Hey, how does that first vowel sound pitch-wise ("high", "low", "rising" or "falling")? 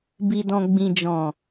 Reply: low